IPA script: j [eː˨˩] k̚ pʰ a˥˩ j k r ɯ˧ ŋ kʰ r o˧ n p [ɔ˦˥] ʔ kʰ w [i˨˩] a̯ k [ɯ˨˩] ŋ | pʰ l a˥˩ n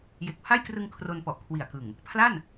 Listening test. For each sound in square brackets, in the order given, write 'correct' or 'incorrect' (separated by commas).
incorrect, incorrect, correct, correct